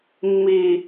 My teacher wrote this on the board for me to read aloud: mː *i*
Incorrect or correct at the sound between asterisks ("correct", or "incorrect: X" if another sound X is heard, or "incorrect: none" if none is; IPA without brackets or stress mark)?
correct